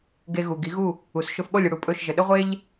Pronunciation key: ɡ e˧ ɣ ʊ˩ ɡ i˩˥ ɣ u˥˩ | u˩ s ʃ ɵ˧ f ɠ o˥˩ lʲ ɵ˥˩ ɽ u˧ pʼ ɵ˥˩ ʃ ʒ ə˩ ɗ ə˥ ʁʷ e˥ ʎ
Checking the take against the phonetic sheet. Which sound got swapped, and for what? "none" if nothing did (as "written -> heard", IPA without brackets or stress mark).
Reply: ʊ˩ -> u˩